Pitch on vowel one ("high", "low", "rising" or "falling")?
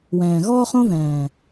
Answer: low